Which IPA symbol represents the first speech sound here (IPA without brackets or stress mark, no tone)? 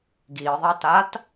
ɡ